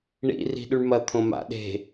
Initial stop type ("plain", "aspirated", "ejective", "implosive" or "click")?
implosive